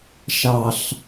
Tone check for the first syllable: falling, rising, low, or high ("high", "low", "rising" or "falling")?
low